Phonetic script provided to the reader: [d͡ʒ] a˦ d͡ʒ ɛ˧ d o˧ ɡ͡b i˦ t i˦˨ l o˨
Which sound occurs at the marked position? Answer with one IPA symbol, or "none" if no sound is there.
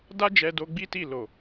d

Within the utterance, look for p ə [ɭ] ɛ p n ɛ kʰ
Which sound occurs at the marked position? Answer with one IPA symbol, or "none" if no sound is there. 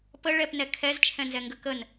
ɭ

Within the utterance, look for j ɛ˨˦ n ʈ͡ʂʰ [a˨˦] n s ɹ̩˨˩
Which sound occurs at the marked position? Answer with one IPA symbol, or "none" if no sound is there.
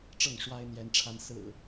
a˨˦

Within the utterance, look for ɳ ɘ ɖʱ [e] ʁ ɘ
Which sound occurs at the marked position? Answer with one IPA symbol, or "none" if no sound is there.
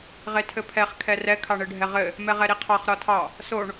ɛ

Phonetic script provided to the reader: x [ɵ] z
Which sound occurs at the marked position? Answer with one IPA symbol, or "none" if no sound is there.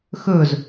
ɵ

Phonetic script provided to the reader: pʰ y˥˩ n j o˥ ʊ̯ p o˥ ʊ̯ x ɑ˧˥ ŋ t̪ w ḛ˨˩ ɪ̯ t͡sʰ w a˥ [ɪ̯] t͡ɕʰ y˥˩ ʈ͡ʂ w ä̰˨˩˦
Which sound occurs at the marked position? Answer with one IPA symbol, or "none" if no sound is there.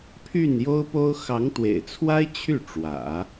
ɪ̯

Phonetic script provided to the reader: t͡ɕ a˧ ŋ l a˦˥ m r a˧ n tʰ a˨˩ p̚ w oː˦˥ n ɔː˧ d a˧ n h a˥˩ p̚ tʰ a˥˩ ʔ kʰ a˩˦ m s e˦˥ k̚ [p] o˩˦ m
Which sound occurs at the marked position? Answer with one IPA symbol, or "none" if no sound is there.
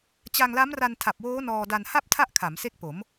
p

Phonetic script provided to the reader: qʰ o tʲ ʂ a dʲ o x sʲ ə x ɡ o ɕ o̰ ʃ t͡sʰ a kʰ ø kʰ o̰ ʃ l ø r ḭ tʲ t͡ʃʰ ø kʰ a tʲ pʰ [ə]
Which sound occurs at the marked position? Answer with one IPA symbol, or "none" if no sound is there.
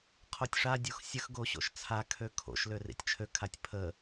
ə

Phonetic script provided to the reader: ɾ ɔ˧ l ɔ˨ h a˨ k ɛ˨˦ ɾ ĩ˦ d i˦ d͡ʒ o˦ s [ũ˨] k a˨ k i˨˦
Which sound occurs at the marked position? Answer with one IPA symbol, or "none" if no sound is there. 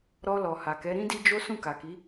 ũ˦˨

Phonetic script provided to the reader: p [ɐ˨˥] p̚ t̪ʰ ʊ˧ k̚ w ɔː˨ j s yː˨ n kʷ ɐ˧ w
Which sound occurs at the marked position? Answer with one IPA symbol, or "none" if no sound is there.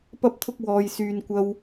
ɐ˧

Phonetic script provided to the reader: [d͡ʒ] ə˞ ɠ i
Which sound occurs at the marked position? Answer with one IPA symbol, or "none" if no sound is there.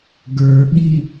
ɡ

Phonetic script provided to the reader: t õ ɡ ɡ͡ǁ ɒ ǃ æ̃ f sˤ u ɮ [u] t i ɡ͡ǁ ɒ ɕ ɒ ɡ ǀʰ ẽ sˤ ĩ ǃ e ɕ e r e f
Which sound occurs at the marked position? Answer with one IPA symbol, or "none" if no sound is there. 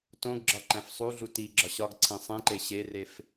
u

